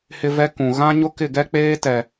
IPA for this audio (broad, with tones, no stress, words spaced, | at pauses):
hɪ˦vɛ˦kũ˨ ɣã˦ ɲʊ˦kɪ˦˨ɡɛ˦ k͡peː˦tɛ˨